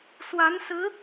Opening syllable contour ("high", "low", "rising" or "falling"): rising